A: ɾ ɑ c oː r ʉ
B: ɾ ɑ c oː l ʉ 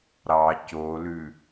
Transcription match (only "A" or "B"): B